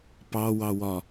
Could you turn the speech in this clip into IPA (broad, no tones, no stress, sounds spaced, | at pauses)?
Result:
p ɑ w ɑ w ɒ